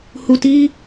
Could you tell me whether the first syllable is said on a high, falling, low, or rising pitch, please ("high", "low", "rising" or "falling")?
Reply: low